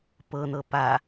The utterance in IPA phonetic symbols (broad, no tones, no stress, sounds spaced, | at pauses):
p ɤ n̪ ɤ p a